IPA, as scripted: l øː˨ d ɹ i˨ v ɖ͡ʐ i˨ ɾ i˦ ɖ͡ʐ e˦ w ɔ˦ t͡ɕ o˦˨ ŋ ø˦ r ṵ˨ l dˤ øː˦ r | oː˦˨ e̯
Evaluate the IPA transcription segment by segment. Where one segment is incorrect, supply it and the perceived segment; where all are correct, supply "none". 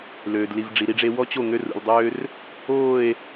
ɹ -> l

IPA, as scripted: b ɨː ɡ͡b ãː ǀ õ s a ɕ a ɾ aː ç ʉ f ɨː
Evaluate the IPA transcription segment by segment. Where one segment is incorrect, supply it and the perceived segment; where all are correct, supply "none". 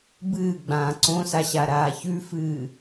none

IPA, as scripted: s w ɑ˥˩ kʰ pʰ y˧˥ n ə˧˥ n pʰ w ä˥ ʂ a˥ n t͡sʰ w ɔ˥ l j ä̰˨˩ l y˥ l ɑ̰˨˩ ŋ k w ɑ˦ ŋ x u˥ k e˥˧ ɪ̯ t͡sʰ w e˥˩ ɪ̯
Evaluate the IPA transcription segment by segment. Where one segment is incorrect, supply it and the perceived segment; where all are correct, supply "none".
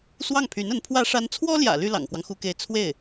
kʰ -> ŋ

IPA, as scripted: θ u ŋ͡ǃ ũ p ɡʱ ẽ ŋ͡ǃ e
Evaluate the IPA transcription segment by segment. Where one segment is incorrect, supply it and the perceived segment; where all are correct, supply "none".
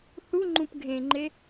none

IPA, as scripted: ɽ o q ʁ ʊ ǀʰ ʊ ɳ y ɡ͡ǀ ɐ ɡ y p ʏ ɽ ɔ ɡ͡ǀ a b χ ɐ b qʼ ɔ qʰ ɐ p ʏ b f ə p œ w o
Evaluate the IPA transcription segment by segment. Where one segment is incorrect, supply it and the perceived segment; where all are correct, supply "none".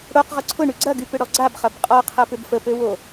œ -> ø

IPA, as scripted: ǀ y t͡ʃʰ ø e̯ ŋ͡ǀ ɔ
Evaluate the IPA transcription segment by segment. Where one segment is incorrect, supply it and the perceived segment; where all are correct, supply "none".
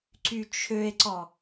ŋ͡ǀ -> ǀ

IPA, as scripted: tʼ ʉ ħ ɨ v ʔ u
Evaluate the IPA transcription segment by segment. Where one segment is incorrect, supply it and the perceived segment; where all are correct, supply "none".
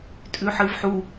ʔ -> ħ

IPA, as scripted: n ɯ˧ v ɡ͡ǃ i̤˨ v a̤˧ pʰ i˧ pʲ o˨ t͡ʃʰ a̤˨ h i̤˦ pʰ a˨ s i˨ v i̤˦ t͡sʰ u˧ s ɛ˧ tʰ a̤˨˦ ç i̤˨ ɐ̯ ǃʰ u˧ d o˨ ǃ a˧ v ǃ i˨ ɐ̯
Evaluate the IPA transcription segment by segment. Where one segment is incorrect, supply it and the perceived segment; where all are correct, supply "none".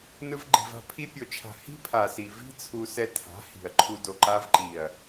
ç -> h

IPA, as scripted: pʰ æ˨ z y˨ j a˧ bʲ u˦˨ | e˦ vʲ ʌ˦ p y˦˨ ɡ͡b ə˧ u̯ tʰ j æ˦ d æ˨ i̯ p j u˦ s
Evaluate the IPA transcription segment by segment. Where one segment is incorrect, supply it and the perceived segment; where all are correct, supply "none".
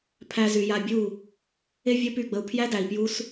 tʰ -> pʰ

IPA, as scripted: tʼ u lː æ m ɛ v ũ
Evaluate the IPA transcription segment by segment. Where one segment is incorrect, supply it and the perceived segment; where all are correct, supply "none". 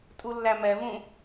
none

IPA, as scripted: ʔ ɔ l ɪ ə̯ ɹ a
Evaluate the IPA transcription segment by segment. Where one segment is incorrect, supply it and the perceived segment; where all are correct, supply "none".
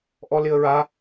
none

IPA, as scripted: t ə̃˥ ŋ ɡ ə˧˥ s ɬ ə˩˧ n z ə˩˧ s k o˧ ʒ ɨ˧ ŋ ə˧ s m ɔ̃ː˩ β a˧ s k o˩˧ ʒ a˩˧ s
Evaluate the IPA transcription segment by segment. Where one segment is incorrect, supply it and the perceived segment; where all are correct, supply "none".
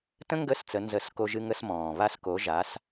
ɬ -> t͡s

